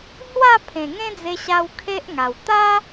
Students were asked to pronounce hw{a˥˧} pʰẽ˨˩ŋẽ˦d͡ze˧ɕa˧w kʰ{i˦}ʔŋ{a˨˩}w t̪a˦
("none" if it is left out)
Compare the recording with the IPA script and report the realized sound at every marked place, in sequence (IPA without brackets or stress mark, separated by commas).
a˥˧, e˦, a˨˩